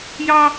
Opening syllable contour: high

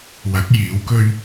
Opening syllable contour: rising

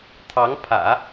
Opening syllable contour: rising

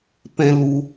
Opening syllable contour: high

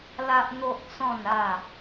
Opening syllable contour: high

